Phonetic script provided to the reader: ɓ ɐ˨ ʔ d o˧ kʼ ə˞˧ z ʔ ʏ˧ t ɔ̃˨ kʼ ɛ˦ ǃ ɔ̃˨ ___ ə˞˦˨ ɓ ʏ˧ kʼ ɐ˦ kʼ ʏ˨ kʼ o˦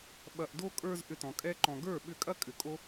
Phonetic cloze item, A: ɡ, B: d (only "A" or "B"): A